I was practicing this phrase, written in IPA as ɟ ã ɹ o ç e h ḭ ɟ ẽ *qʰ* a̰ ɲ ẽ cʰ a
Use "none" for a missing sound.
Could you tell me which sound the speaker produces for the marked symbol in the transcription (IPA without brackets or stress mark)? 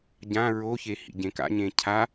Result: k